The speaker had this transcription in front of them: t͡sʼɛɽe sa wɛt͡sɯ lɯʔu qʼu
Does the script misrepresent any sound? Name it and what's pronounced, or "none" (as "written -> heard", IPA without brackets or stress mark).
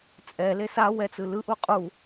ɽ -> l